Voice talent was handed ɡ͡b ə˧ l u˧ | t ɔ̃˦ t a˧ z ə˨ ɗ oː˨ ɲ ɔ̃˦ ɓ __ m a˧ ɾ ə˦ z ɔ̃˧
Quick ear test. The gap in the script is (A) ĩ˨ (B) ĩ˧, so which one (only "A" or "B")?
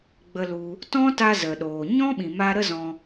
A